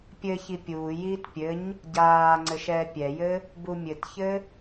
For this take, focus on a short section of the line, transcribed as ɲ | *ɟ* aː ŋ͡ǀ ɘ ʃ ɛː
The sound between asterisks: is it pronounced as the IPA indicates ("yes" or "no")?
yes